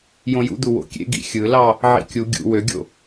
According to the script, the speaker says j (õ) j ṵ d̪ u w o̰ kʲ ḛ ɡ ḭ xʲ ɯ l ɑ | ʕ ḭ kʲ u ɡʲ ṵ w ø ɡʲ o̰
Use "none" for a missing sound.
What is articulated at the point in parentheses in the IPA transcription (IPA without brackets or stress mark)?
õ